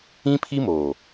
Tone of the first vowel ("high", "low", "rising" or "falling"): high